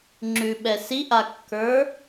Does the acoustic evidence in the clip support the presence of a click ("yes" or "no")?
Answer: yes